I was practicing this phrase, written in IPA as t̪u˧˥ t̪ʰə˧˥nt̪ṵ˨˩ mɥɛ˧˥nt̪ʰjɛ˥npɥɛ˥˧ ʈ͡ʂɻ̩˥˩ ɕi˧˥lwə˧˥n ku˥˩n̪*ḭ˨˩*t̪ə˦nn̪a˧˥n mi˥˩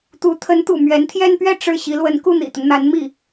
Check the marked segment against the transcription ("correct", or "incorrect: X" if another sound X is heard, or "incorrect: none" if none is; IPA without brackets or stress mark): correct